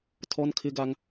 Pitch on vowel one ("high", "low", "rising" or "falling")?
high